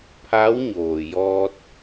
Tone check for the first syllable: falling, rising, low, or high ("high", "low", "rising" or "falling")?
rising